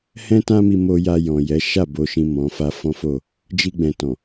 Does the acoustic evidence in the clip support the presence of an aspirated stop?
no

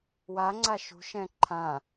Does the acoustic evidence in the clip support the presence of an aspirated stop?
yes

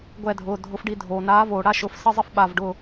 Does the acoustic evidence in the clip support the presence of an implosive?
yes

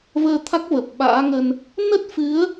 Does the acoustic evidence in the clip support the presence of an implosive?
yes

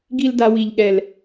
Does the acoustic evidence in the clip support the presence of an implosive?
yes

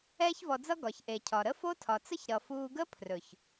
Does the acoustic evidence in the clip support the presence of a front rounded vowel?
no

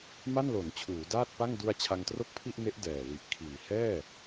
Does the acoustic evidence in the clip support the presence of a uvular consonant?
no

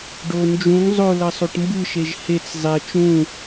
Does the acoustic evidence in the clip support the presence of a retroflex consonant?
yes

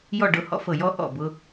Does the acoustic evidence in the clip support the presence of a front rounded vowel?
no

